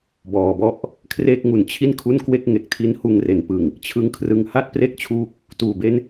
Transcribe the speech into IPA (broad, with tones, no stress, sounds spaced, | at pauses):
b ɔː˩˦ b ɔ˥˩ ʔ | kʰ r eː˥˩ k̚ ŋ u˨˩ n t͡ɕʰ i˥˩ n kʰ u˥˩ n k w e˥˩ k̚ ŋ e˨˩ k̚ tʰ i˦˥ n h uː˧ ŋ r e˩˦ n p ɯ˨˩ ŋ | t͡ɕʰ ɯ˦˥ ŋ kʰ r ɯ˧ ŋ h a˥˩ t̚ p r e˦˥ k̚ t͡ɕʰ uː˦˥ k̚ | t uː˩˦ b e˦˥ n